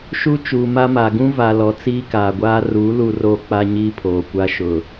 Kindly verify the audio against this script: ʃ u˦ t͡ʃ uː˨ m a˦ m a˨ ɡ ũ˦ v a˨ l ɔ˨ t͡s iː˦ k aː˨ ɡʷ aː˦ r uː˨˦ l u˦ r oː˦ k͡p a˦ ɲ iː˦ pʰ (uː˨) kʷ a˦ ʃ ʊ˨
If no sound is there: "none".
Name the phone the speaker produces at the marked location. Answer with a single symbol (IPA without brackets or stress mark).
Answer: oː˨